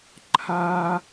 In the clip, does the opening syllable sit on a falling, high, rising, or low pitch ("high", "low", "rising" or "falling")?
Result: high